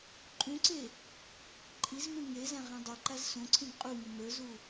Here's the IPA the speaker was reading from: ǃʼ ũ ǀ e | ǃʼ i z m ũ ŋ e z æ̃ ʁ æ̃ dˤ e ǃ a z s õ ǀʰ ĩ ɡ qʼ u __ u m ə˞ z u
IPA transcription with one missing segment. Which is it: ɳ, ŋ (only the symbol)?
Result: ŋ